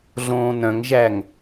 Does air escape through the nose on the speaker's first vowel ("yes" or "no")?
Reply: yes